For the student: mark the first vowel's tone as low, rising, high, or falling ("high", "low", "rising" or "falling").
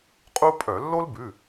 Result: high